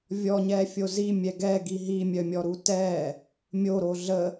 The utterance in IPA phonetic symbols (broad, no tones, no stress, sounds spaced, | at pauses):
vʲ ɔ ɲ ɛ fʲ o z i mʲ ɛ ɡ ɛ ɡ i ɦ i mʲ œ mʲ ɔ ɾ u t ɛ | mʲ o ɾ o ɮ ə